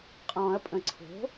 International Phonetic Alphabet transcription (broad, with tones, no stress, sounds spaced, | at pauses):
qʼ ɔ̃ː˨˩˦ ɐ̯ pʼ ə̃˨˩˦ ǀʰ o̤˩˥